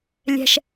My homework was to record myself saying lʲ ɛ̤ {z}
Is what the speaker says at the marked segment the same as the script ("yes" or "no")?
no